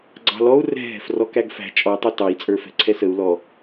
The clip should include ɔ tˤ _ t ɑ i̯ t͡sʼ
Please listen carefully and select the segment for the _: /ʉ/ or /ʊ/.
ʊ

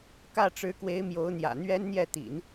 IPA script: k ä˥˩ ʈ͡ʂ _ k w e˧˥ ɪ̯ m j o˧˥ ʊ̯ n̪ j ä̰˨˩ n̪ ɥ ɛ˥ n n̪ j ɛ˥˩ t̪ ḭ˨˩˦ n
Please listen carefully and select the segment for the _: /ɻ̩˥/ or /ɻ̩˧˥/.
ɻ̩˧˥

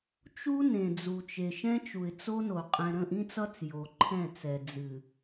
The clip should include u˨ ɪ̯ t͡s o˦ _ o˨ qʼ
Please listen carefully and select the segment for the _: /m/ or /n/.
n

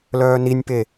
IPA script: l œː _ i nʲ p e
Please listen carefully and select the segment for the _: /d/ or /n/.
n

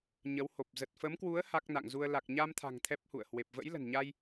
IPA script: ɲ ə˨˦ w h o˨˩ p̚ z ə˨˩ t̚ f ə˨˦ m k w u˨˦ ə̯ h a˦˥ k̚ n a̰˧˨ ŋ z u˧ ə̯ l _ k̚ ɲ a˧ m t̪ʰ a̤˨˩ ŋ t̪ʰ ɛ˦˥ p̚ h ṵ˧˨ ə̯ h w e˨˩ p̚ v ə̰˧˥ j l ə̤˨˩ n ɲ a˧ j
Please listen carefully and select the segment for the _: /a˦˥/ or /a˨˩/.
a˨˩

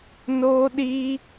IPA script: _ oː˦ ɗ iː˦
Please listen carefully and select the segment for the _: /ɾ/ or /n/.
n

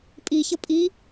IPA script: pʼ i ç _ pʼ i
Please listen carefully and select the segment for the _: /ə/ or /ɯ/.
ə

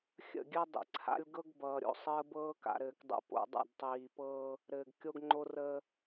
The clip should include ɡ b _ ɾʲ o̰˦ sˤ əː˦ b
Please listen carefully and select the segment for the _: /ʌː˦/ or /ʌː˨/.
ʌː˨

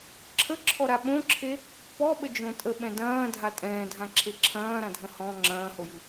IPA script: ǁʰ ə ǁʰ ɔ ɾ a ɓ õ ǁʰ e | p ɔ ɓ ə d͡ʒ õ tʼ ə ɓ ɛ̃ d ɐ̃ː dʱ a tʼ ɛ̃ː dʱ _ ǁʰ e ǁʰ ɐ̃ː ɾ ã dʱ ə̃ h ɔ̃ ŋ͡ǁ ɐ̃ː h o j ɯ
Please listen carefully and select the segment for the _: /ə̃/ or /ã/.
ã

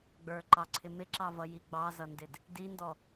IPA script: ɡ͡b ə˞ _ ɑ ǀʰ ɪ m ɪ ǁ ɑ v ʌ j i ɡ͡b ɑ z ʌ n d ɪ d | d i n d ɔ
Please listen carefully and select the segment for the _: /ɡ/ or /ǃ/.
ǃ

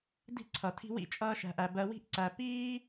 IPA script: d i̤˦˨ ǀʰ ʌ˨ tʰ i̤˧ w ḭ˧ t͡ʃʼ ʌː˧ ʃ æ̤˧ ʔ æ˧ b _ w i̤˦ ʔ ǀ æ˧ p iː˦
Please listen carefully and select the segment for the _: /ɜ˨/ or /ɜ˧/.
ɜ˧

